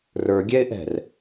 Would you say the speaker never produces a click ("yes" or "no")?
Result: yes